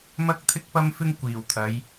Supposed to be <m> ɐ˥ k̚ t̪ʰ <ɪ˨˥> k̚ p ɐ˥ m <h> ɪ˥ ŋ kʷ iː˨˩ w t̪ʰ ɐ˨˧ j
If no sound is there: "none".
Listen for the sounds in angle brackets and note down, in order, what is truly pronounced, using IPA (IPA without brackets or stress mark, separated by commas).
m, ɪ˥, f